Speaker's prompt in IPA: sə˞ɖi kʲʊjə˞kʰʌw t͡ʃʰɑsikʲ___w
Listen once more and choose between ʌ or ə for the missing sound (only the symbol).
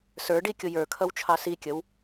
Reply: ə